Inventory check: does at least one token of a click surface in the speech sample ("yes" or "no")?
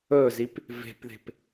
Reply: no